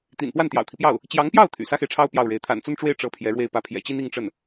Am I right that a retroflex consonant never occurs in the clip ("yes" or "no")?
no